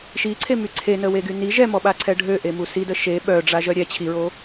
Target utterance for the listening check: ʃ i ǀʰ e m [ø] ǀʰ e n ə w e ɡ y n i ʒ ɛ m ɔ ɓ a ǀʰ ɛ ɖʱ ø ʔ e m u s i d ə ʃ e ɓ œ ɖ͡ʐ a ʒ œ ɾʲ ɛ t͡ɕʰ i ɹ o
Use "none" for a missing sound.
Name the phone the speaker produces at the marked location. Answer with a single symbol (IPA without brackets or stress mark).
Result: y